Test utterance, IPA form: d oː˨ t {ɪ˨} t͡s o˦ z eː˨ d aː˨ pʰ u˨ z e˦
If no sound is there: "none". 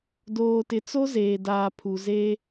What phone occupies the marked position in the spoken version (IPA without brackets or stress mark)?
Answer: ɪ˨